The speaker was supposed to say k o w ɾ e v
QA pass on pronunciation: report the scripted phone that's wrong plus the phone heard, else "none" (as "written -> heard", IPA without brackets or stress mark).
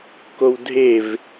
ɾ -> dʱ